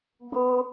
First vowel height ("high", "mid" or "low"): high